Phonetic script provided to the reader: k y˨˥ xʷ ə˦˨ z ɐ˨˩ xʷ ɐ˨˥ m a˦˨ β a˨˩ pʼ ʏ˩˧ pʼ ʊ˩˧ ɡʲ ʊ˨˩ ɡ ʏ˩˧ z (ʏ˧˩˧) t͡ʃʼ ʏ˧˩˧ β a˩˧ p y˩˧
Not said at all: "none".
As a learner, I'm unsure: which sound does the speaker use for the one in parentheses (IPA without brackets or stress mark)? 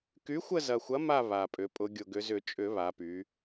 ʏ˧˩˧